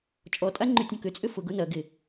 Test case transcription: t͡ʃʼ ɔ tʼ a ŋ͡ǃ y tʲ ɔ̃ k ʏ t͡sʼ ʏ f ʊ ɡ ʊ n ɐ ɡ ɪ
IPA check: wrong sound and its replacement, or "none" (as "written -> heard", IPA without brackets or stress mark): none